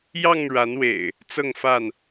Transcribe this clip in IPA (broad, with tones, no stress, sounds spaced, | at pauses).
j ɑ˥˨ ŋ ɻ a˨˦ n w ḛ˨˩ ɪ̯ | t͡s ɤ˥˨ ŋ f a˥˨ n